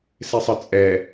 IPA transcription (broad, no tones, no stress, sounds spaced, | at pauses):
s e sˤ ə t͡sʼ ɛ